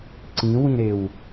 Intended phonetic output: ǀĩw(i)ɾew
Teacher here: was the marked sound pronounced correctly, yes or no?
no